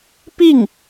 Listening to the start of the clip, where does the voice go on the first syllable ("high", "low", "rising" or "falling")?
falling